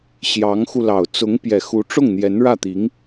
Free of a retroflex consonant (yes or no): no